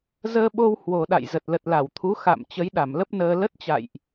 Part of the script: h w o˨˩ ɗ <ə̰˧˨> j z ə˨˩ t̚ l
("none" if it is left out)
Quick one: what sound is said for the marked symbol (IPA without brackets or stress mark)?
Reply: a̰˧˨